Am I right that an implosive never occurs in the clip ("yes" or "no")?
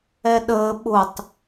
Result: no